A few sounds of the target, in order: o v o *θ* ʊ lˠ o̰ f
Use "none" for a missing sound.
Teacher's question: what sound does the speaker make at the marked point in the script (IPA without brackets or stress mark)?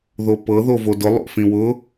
d